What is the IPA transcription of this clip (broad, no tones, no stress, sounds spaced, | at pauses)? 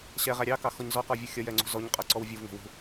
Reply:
ɕ ɛ ʁ æ ɾʲ ɑ k ɑ x ɔ ɲ z ɔ q ɔ vʲ u xʲ ʌ j ɛ ŋ͡ǀ ṳ z ɔ ɲ qʼ ʌ ǀ ɔ w vʲ u v ŋ ɛ̤ w ṳ